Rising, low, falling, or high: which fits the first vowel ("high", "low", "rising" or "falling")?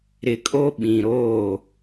low